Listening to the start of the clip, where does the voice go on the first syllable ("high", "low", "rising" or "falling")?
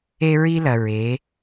high